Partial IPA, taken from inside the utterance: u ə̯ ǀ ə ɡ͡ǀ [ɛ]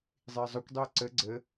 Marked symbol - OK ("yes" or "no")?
no